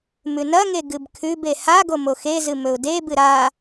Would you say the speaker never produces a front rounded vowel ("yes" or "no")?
yes